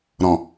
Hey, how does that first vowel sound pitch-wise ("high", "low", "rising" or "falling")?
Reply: low